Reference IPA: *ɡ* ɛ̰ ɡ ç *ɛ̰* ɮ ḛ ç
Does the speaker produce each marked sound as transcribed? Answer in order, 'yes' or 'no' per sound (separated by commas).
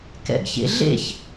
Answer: no, no